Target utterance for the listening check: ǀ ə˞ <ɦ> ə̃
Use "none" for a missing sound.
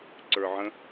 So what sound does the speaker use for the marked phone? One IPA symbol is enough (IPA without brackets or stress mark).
ʕ